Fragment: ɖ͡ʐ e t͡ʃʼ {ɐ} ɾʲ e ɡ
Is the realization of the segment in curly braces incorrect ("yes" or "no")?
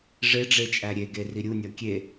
yes